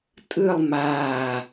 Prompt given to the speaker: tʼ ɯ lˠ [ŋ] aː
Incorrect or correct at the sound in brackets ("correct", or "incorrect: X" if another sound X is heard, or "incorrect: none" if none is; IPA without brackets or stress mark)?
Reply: incorrect: m